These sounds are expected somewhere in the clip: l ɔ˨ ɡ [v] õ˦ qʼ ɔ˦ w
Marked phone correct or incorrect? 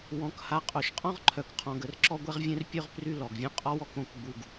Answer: incorrect